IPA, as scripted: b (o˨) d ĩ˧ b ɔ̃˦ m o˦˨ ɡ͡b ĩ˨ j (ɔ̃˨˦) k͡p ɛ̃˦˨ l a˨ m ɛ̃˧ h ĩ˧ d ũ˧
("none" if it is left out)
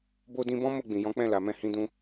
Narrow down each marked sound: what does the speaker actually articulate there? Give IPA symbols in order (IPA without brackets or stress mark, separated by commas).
o˧, ɔ̃˨˦